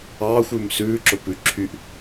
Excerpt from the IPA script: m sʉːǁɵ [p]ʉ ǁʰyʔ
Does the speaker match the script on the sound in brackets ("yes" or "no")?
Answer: yes